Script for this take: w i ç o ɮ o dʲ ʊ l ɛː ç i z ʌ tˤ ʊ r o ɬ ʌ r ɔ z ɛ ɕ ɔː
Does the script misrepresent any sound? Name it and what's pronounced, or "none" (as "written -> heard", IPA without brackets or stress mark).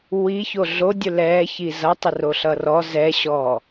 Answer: none